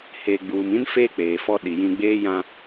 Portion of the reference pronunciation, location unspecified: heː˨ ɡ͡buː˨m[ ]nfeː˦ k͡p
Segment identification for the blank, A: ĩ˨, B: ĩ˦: B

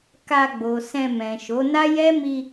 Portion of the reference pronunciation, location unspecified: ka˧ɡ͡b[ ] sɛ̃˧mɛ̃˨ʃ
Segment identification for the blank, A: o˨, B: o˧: A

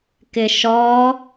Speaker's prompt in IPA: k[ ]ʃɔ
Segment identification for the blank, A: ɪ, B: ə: A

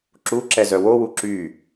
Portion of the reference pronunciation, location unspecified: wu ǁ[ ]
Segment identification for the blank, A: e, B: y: B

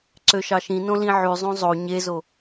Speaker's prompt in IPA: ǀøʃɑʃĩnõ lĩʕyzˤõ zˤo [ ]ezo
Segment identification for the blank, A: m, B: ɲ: B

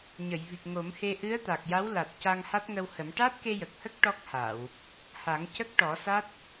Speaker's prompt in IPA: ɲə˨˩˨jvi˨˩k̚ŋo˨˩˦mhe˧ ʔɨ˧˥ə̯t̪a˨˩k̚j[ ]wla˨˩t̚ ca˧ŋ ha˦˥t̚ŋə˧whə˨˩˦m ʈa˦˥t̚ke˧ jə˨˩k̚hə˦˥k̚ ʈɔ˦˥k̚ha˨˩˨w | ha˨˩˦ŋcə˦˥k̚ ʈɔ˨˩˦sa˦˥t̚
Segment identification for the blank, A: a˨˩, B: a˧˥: B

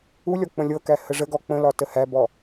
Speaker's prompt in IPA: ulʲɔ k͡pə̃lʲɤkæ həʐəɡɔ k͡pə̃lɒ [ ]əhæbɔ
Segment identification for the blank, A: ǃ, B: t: B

